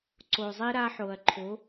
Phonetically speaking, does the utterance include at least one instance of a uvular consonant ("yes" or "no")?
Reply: no